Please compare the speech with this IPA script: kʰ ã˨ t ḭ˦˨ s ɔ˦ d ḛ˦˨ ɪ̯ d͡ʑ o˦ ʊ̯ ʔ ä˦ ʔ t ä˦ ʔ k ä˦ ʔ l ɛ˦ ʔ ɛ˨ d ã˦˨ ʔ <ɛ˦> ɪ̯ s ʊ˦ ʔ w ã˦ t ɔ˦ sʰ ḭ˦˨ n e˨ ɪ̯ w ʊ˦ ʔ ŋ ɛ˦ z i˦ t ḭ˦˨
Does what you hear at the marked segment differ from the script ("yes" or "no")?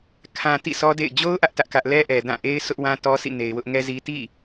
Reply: yes